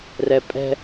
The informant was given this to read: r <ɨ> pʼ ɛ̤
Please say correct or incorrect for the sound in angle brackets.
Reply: incorrect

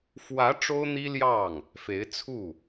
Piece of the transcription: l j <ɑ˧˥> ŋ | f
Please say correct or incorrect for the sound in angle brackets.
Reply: incorrect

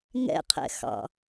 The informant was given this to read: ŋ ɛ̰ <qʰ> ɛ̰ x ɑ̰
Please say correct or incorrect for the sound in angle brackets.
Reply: correct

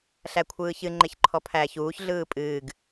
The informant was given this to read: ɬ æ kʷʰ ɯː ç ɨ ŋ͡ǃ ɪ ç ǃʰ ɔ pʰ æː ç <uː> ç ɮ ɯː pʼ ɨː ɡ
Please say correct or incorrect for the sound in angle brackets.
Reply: correct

